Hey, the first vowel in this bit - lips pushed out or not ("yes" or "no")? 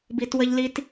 no